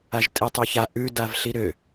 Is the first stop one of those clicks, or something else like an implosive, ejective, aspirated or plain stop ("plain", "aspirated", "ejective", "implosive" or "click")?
ejective